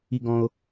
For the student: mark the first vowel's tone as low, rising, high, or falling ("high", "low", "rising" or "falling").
high